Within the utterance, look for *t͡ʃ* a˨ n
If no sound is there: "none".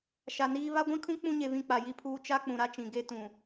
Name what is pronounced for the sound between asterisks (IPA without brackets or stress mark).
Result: ʃ